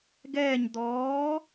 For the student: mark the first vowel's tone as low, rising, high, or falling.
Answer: falling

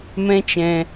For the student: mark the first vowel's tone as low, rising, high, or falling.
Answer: high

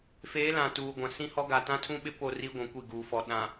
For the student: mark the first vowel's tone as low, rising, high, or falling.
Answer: rising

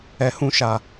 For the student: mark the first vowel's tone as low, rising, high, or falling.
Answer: low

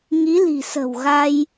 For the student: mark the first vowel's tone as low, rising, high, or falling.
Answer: rising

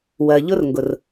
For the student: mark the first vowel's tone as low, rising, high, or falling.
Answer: low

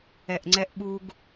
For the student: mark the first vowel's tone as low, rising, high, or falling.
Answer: low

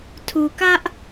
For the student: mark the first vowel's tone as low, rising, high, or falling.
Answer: low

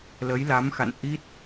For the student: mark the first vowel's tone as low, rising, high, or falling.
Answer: rising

